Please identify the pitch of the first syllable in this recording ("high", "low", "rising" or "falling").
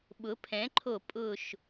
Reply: rising